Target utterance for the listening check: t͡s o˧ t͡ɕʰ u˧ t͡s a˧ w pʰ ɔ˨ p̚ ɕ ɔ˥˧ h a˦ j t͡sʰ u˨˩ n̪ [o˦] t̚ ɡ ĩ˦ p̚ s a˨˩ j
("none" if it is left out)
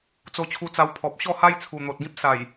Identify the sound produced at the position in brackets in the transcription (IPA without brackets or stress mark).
o˨